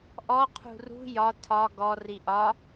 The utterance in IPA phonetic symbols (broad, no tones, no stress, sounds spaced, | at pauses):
ʔ ɔ qʰ ṳ r ṳ j ɒ tʰ ɒ ɡ ɔ r i ʔ ɒ